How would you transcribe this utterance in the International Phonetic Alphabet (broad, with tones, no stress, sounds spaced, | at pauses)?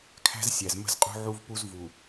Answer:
kʰ æ̤˦ z sʲ æ˨ z m ə̤˦ z qʼ ṳ˦ ʕ u˦ v p u˦ z v u˨